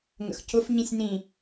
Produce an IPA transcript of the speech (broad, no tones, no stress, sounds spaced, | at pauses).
ŋ ə̰ x c ʊ f ɲ ĩ sʲ n ĩ